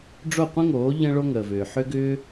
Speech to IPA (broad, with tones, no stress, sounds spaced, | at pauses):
ɖ͡ʐ o˥˩ qʷ ə̃˥ ŋ oː˩˥ ʎ ə̃˧ ɭ o˧ ŋ əː˩ v ʏː˩ ħ ʏ˧ ɡ ʏː˧